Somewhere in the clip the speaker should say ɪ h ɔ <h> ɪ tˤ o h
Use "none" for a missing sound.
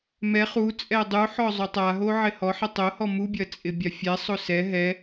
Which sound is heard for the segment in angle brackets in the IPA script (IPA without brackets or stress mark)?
ħ